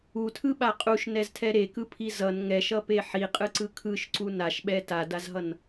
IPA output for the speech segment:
u tʰ ɯ ɓ a qʼ u ʃ n ɛ z tʰ ɛ ɾ e k ɯ pʰ i z ʌ n ŋ ɛ ʃ ʌ p e ħ i qʼ ɯ ǀ ɯ kʰ ɯ ʃ ǀ u n a ʃ ɓ ɛ t a d a z ɦ ʌ n

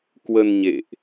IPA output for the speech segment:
k w ə˧ n ɲ ḛ˧˨ ʔ

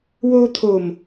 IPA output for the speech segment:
w o˧ t̪ʰ o˨˩ m

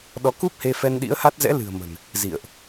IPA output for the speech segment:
ɗ ɔ˨˦ k u˦˥ p̚ h e˧ f ɛ˧ n ɗ ḭ˧˥ ə̯ h a˦˥ t̚ z ɛ̰˧˥ l ɨ̤˨˩ ə̯ m ə̤˨˩ n | z ḭ˧˨ ə̯ ʔ

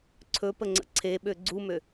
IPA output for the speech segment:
ǀʰ ɵ p ə ŋ͡ǀ ə̰ ǀʰ e ɓ ø ɡ͡ǀ u m ø

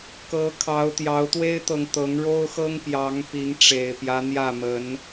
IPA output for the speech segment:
k ɤ˨˦ kʰ ɑ˨˦ ʊ̯ t̪ j ɑ˨˦ ʊ̯ t̪ w e˦ ɪ̯ t̪ ɤ˨ ŋ t̪ ɤ˨˦ ŋ ɻ o˦ ʊ̯ x ɤ˦ ŋ p j ɑ˨˦ ŋ p i˨˦ ŋ ʈ͡ʂ e˨˩ ɪ̯ p j ä˦ n̪ j ä˥˨ m ə˨˦ n

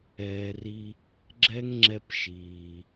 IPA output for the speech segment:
ɛː˨ r i˧ | ɡ͡ǁ ɛ˦ ŋ ŋ͡ǁ ɛ˧ p ʃ iː˨

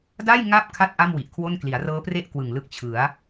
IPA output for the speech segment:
d a˥˩ j ŋ a˦˥ p̚ kʰ a˦˥ t̚ ʔ a˥˩ m w i˨˩ ʔ kʰ w o˥˩ n k l i˩˦ a̯ r ɤː˦˥ p r e˥˩ ʔ k w ɯ˨˩ ŋ l ɯ˥˩ k̚ t͡ɕʰ ɯ˩˦ a̯

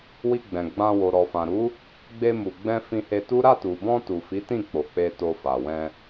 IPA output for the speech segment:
w i˧ ɡ͡b ɛ̃˨ ɡ͡b ã˧ w o˨ ɾ ɔ˨ f ã˨ ɾ u˨˦ | ɡ͡b e˧ m u˨ ɡ͡b ɛ̃˧ f ĩ˧ h e˧ t u˦ ɾ a˦˨ t u˨ b ɔ̃˧ t u˨ f i˨˦ t ĩ˦˨ k͡p o˨ k͡p e˧ t o˧ f a˨ w ɛ̃˧

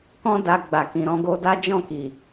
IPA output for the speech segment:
k ɔ̃˦ d a˧ ɡ͡b a˨ k ĩ˨ ɾ ɔ̃˧ ɡ o˧ d a˦ d͡ʒ ɔ̃˦˨ k i˨

